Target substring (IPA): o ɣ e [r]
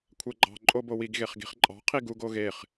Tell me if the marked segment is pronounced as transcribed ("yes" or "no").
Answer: no